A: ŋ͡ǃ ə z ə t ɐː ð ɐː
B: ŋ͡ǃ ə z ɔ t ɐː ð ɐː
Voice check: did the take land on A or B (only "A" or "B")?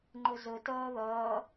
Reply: A